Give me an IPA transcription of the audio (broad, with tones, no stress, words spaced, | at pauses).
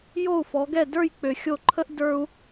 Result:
jo˥˩u̯fɔ˩˥ɡɛ˥˩ də˞˥˩jk͡pø˩ xʲo˥˩ǃʰə˥ʔ də˞˧u̯